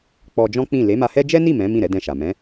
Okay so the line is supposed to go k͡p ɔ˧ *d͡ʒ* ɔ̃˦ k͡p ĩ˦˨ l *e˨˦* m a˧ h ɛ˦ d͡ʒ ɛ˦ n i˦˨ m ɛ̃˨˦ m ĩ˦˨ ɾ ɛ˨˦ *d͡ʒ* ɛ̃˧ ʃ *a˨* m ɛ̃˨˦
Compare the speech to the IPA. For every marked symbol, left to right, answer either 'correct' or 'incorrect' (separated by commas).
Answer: correct, correct, incorrect, correct